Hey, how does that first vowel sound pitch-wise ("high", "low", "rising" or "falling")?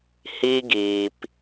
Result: high